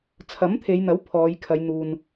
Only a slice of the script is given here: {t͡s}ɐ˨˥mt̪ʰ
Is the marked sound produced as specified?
no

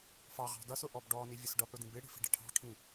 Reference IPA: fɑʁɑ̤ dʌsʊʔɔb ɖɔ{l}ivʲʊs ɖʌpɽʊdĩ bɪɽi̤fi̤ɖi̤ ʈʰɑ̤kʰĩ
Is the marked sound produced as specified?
no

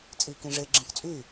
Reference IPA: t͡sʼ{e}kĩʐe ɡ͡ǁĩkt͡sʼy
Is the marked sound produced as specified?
no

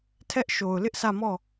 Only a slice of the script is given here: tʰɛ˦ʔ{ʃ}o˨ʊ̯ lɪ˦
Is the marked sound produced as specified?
yes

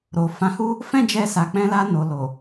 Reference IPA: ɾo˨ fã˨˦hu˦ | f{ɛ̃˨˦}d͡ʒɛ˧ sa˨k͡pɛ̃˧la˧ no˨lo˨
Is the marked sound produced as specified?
no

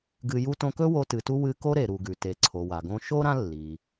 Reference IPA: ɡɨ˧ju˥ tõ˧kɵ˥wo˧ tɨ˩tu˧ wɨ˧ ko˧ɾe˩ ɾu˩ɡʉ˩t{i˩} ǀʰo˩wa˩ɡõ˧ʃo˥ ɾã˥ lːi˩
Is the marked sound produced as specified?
no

